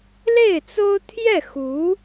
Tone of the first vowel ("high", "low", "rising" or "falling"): falling